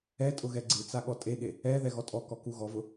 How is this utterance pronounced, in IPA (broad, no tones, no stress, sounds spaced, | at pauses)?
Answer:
ɛ tʼ ʊ ɣ ɛ ɡ͡ǀ ɨ t͡s a ɠ ɔ tʼ e ɠ e | ɛ ð ɛ ɣ ɔ tʼ ɔ k ɔ k u ɣ ɔ v ʊ